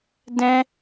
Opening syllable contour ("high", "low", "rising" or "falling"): high